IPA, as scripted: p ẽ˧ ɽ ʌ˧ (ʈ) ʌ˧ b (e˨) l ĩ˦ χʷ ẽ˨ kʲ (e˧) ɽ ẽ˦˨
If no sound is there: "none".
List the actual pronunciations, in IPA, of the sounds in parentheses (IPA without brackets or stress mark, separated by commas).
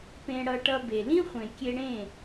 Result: ʈ, e˨, e˧